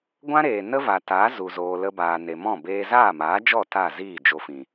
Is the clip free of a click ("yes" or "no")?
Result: yes